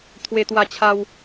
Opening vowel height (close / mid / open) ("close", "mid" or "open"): mid